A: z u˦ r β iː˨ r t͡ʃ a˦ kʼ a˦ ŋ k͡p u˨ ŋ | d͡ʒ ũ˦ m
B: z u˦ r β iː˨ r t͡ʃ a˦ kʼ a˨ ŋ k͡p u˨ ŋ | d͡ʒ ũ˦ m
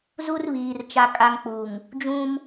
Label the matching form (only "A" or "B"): A